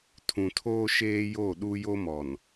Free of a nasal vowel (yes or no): no